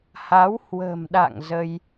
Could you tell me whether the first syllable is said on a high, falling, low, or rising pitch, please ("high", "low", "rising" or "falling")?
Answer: rising